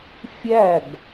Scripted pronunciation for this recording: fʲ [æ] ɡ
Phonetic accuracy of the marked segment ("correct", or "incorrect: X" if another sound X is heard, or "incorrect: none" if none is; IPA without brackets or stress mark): correct